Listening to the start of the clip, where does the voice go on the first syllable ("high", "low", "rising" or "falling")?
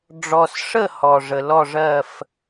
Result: low